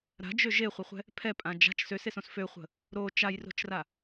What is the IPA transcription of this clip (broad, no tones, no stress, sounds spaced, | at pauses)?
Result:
ɾ a̤ d͡ʒ ø ʒ e χʷ ə χʷ ɛ̤ | pʰ ɛ pʼ ã d͡ʒ a̤ t͡ʃ s ø s e s õ s f ø χʷ ə̤ | ɾ o t͡ʃ a j r o̤ t͡ʃ r a